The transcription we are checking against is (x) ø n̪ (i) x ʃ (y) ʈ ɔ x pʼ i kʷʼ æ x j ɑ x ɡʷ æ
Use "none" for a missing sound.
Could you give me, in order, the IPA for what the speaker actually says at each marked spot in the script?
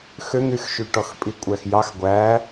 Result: x, y, y

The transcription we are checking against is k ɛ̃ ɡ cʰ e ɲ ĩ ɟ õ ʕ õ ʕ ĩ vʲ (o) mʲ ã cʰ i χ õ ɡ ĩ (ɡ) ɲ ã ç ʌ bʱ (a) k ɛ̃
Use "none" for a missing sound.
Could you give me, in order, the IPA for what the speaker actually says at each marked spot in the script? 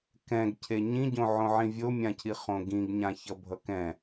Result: o, ɡ, ʌ

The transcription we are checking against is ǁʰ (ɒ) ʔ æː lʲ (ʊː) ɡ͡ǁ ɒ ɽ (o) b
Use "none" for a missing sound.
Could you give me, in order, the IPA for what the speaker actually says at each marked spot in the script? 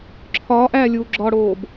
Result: ɒː, uː, oː

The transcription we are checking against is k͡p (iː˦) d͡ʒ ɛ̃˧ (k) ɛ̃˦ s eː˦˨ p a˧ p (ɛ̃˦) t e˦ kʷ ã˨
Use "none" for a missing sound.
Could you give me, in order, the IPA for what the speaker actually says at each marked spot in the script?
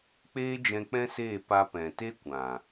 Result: eː˦, k͡p, ɛ̃˨

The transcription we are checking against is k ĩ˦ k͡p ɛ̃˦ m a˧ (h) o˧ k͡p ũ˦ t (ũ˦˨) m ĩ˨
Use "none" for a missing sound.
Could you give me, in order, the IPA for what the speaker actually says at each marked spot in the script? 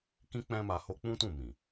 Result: h, ũ˦˨

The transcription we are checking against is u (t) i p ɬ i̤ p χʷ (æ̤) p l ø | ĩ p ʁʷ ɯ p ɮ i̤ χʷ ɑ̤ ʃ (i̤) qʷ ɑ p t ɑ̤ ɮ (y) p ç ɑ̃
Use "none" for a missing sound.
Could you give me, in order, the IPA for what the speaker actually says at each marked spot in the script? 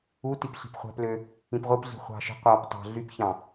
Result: t, æ̤, i̤, y

